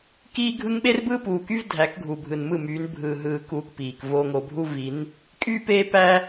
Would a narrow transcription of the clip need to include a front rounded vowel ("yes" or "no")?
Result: yes